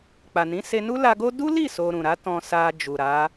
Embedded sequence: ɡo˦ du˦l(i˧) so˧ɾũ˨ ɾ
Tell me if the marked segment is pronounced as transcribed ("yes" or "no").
no